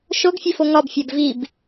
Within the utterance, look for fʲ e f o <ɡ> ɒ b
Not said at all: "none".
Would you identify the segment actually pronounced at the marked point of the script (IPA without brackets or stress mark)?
ŋ